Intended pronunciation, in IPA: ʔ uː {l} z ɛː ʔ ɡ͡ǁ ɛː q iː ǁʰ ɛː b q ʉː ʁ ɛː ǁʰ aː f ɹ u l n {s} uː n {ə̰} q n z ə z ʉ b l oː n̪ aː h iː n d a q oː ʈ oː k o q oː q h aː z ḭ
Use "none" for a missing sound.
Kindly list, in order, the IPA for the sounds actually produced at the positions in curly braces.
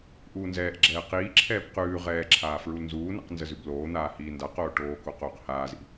n, z, ɛ̰

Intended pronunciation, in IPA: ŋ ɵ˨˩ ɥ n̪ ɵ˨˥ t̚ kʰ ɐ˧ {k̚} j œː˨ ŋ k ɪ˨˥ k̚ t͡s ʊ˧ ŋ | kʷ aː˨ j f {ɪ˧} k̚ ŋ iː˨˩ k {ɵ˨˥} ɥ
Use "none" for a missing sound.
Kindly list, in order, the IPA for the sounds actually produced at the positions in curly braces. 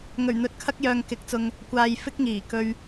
k̚, ɪ˧, ɵ˧

